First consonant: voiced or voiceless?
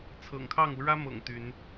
voiceless